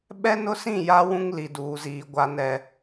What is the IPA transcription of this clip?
ɓ ɛ˦ n ʊ˦ s ĩ˦˨ j a˦ w ũ˦ ŋ l i˨ d uː˨ z iː˨ ɡʷ a˦ n ɛ˦

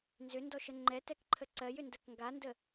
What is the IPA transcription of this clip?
n z ʏ n d ɔ ʃ ə ŋ͡ǃ ɛ t ɛ k ǃʰ ə ǀ ɜ j ʏ n d ɜ k ŋ ɡ a n d ə

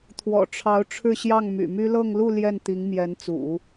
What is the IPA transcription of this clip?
t̪ʰ w ɔ̰˨˩ ʈ͡ʂʰ ɑ˧˥ ʊ̯ ʈ͡ʂʰ ɻ̩˥˧ ɕ j ɑ˥˩ ŋ m y̰˨˩ m y˥ l ɤ˥˧ ŋ l u˥˧ l j ɛ˥˩ n t̪ i˧˥ ŋ m j ɛ˧˥ n t͡s ṵ˨˩˦

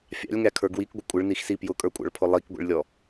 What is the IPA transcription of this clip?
fʲ ɑ̰ lʲ ŋ æ kʰ ə˞ ɡ w i k ɡʷ ɪ kʷʼ ɪ ɭ n i x s i p j ʊ kʼ ə˞ kʷʼ ɑ̰ ɭ pʰ ʊ lˠ i k ɡʷ ḭ ɭ lʲ ɔ

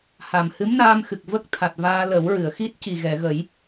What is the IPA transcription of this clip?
h a˨˩ m h ɨ˧˥ m n aː˧ m x ɨ˨˩ k̚ v ə˦˥ k̚ t̪ʰ a˨˩ t̚ v aː˧ l ə˨˩˦ w ɹ ɨ˨˩˨ ə̯ x i˦˥ t̚ c i˨˩ ɣ ɛ˨˩˨ ɣ ə˨˩˦ j

